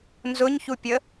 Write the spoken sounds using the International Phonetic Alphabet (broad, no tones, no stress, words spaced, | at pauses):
nzʊɲçupʲə